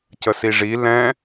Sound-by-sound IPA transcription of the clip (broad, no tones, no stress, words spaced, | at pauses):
cəsiʐi lɛ̃